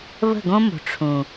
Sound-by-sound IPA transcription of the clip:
βə̤˦˨ɡõ˦mo̤˨ ʈ͡ʂʰũ˨

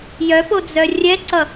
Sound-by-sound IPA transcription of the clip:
jœpod͡zœ rʲɛǀʌ

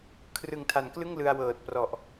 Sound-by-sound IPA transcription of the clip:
kʰrɯ˨˩ŋtʰa˩˦nklɯ˥˩ŋ lɯ˧a̯wɤː˨˩t̚prɔ˨˩ʔ

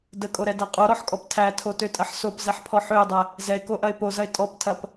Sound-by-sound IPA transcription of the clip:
dəkʼoɾɛdæ qʼoɾɔħkʼɔp tʰætʰotøtʼɐħ sopzɛħpʰɔ ħøɪ̯dˤɛ | zɛɪ̯koʔɐɪ̯ pozɐɪ̯ tʼɔptʰɐp

